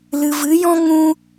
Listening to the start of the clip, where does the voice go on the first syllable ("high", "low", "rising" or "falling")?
low